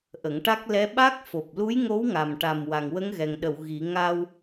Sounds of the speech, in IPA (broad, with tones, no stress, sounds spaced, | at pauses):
ʔ ə˨˩˦ ŋ ʈ a˦˥ k̚ l ɛ˧˥ ɓ a˦˥ k̚ f o˨˩ p̚ l u˧˥ j ŋ o˧˥ w ŋ a˨˩ m ʈ a˨˩ m w a˨˩ ŋ w ə˧˥ ŋ ɣ ɛ˨˩ ŋ ɗ ə˨˩˨ w ɣ i˨˩˦ ŋ a˧ w